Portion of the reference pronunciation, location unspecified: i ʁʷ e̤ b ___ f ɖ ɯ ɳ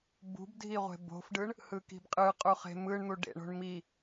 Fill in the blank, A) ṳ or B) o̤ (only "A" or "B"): B